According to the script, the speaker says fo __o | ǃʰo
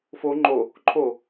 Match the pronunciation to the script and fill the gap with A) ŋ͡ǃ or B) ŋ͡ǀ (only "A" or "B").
A